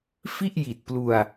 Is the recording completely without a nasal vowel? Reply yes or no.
yes